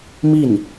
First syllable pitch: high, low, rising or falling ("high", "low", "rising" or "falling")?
falling